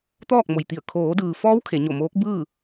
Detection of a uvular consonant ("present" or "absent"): absent